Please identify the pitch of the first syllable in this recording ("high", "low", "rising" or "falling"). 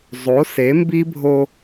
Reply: rising